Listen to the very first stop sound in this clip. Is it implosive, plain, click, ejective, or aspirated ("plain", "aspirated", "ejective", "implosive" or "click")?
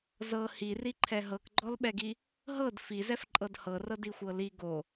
click